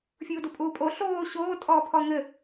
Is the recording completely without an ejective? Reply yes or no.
no